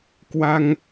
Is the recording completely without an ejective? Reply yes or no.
yes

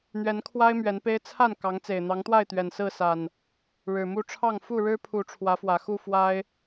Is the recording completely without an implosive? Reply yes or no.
yes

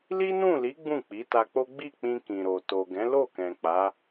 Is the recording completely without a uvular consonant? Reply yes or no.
yes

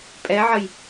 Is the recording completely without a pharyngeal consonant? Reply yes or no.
no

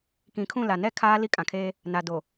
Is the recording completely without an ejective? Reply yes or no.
no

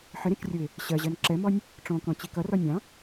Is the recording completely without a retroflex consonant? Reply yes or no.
no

